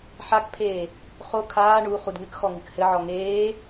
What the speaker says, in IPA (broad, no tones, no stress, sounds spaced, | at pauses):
ħ a k pʰ eː | χ o kʰ aː ɳ u χ u d ŋ ɨ k x ɔ ŋ ɨ k h ɘ ʕ ɔ ŋ eː